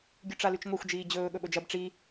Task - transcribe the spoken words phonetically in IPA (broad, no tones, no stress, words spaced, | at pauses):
ɡʲʉʈ͡ʂalʉt͡ʃŋʷexʷ d͡ʒiːd͡ʑɵː ɠɵɓɵd͡ʒɐb ʈ͡ʂi